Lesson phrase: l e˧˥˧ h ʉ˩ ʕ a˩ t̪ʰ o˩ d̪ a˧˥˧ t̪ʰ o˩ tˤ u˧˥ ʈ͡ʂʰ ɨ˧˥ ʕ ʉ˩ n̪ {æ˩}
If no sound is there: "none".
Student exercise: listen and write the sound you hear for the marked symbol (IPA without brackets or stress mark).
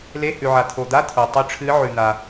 a˩